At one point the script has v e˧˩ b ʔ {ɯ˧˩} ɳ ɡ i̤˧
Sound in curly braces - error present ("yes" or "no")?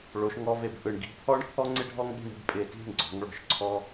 no